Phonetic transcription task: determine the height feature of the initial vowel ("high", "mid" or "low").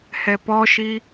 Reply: mid